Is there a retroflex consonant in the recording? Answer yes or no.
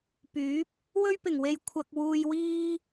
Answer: no